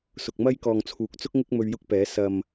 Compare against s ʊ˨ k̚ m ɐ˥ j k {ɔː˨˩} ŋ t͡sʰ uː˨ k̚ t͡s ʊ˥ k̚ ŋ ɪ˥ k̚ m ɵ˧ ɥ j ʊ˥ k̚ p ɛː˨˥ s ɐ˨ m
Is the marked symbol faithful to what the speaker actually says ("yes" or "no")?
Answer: no